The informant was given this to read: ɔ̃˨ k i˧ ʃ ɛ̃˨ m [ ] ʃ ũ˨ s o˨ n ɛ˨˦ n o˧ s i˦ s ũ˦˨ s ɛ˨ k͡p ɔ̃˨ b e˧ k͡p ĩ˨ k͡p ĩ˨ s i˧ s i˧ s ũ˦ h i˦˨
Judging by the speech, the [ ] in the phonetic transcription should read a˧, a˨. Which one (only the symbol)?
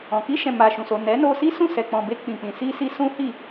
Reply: a˨